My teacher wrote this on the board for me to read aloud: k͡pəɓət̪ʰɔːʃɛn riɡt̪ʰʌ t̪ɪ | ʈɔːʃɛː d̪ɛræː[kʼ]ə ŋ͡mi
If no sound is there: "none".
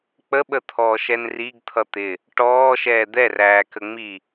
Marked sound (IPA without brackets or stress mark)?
k